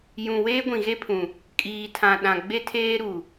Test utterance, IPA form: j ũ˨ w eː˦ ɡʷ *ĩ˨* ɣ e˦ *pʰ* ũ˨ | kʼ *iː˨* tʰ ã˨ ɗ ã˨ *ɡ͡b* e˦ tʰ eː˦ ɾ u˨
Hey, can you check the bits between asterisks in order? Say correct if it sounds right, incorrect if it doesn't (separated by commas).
correct, correct, correct, correct